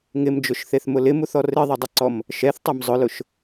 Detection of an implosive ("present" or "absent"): absent